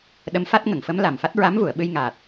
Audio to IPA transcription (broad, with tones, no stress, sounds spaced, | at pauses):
ɗ ə˧˥ m f a˦˥ t̚ ŋ ə˨˩˨ ŋ f ə˧˥ m l a˨˩ m f a˦˥ t̚ ɹ a˧˥ m v u˨˩˨ ə̯ ɓ ɨ˧ j ŋ aː˨˩ t̚